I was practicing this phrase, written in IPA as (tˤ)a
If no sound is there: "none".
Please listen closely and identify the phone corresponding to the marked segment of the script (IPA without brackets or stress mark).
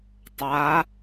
tˤ